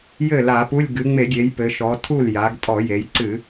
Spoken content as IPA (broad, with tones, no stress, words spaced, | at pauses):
jɘ˥˩la˧˩˧pu˧˥˧lʲ ɡɨ˩˧ŋ͡me˧˩˧ɡʲe˩˧j pɘ˩˧ʃɔ˩˧tʰu˥˩l ja˩˧ɡtʼɔ˧˩˧je˩˧jǀɨ˧˩˧